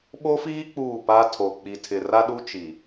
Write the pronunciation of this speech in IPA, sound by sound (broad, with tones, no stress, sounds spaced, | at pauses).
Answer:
ɓ o˦ f iː˦ k͡p uː˦˨ p a˦ tʰ o˨ k͡p i˨ tʰ ɪ˨ r a˦ ɗ u˦ t͡ʃ i˨